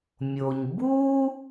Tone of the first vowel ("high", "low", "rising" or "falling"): low